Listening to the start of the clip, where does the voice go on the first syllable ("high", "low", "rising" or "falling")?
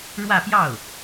falling